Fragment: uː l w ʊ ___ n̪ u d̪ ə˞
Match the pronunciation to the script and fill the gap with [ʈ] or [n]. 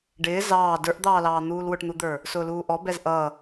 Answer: ʈ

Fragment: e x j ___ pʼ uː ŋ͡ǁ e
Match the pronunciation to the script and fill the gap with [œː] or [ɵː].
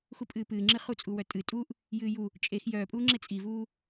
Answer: œː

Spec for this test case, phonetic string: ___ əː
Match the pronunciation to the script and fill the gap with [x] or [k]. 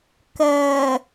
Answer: k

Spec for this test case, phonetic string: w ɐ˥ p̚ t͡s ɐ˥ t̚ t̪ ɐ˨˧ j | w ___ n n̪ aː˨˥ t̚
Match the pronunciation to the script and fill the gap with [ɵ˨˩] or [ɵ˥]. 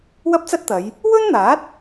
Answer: ɵ˥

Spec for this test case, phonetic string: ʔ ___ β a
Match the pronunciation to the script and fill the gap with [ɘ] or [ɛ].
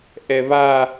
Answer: ɛ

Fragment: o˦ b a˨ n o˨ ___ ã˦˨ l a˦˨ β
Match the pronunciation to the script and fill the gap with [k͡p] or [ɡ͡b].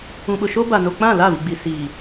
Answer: k͡p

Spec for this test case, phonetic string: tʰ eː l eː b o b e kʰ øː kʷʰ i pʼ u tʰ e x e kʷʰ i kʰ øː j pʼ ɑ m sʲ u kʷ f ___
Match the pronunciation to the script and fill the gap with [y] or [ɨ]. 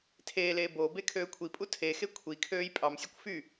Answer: y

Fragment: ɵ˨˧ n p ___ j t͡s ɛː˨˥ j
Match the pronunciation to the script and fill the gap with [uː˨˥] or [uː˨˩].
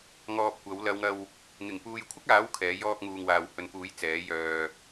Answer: uː˨˥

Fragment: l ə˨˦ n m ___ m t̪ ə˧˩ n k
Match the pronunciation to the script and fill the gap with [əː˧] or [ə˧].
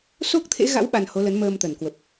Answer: əː˧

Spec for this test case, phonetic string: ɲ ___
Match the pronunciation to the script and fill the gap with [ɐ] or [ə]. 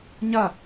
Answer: ɐ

